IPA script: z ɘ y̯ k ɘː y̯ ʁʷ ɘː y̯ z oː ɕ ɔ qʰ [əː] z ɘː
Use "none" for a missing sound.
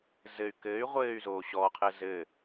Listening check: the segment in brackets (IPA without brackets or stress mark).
əː